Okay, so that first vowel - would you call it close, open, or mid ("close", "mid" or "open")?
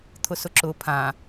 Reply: close